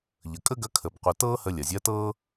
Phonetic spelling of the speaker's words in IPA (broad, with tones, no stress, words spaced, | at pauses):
ʎə˩ kʼə˥ɡɐ˧˥ kʰə˩b qʷɐ˧ tɤː˥hə˧ lʲɐ˩zʲɐː˧˥tɤː˥